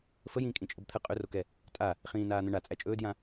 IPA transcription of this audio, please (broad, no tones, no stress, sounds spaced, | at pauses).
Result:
f ə j ĩː kʼ ĩ t͡ʃʼ ə b t̪ʰ ə qʼ ɵ r o k ɛ | tʼ a | χ ĩː n aː n̪ ə̃ ɳ a t͡sʼ æ t͡ʃʼ ɵː d j ã